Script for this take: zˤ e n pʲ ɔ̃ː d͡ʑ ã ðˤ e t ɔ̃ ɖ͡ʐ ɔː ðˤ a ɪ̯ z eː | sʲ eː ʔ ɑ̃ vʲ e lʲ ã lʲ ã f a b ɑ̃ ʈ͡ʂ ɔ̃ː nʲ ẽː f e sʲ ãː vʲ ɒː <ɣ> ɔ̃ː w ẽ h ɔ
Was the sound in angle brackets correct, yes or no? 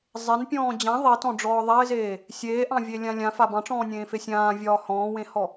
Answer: no